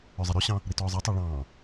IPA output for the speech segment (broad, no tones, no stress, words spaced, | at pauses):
œzˤɛɾʉɕɑ̃ | ɾitɔːzˤɛtˤɑ ɭɑ̃ː